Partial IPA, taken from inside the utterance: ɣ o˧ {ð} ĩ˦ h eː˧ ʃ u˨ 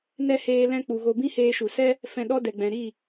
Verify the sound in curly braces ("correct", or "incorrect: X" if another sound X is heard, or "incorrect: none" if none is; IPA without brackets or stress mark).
incorrect: b